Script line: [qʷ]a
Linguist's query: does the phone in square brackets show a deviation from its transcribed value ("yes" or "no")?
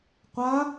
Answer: no